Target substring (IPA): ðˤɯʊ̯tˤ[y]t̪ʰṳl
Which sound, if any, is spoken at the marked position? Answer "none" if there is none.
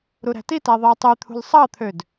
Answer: y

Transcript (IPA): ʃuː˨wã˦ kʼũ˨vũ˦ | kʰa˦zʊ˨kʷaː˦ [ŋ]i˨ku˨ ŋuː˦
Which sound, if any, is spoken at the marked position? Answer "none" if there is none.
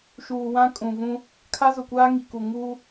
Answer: ŋ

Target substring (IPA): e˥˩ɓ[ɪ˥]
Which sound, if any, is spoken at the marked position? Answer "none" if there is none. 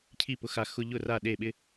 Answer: ɪ˥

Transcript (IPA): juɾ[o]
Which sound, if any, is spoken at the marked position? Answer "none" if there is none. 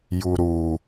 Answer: u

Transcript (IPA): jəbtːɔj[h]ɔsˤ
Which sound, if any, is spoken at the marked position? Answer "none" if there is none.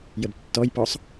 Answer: p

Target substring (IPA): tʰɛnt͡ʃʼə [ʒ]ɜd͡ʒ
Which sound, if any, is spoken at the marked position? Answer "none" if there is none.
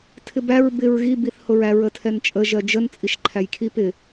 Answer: ʒ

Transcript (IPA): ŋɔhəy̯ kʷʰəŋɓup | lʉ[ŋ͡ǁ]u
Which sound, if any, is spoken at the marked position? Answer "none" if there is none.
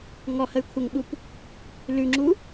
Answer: ŋ͡ǁ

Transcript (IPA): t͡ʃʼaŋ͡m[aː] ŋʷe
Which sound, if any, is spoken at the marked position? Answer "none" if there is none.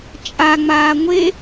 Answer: aː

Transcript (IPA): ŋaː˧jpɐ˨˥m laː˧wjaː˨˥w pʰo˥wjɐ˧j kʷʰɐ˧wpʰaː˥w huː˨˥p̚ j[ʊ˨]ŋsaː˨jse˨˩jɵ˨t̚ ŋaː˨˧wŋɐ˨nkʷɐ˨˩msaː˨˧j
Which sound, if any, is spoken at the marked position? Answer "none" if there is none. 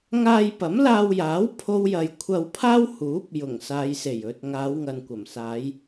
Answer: ʊ˨˩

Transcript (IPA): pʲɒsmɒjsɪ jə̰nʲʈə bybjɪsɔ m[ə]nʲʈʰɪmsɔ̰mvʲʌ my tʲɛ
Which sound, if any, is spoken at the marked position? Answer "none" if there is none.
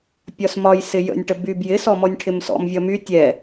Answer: ɔ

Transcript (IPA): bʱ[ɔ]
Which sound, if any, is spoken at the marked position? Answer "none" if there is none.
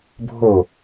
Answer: o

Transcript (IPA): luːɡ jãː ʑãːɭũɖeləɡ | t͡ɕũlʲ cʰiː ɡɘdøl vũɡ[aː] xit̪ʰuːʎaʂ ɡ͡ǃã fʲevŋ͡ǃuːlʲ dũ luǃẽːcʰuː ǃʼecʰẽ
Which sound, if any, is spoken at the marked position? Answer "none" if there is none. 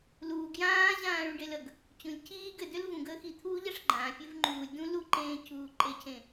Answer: əː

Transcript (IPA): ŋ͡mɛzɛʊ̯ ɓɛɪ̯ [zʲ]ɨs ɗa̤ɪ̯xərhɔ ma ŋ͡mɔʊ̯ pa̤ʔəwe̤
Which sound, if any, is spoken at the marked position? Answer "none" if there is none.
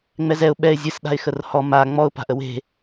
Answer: zʲ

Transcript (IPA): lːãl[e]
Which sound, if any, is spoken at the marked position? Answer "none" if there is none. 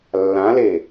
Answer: e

